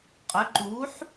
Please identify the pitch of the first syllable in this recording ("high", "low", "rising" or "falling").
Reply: rising